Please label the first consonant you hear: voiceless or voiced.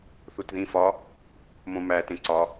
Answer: voiceless